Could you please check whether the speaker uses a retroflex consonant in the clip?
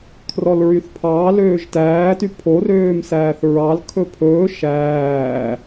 no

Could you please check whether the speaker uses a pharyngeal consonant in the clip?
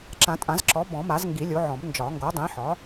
yes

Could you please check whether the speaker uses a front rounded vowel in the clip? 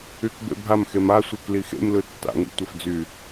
yes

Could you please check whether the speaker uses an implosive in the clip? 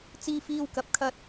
no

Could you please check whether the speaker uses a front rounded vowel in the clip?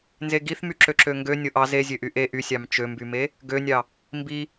yes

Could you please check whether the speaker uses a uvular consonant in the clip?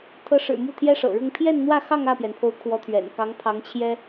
no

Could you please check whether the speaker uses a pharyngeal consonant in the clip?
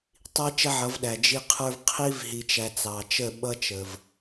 yes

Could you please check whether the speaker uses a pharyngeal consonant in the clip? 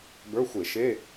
no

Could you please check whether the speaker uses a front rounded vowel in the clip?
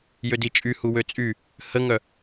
yes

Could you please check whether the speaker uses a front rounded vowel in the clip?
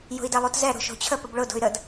yes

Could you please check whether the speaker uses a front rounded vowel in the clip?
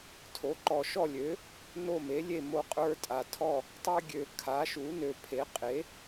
yes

